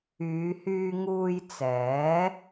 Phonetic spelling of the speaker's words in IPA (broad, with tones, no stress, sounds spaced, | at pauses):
yː˨˧ h yː˧ ŋ uː˧ j t͡s ɛː˨˥